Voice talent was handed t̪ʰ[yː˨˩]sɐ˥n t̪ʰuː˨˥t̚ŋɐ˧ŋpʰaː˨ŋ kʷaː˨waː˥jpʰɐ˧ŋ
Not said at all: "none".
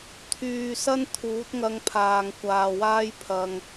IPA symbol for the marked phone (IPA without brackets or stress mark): yː˨